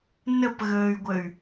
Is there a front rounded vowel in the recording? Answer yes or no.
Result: yes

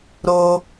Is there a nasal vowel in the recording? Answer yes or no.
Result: no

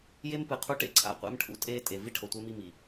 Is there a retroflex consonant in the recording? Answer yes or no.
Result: yes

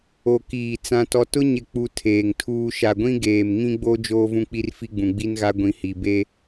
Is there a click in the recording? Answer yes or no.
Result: no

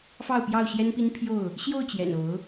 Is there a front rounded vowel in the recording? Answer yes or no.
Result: no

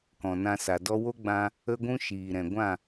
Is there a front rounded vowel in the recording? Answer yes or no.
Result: no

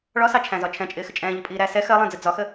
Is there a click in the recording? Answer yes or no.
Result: no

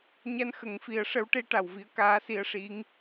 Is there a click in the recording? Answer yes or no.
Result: no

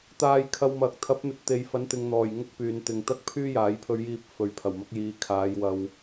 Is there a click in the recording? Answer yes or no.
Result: no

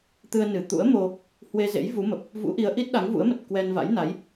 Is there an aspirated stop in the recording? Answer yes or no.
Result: no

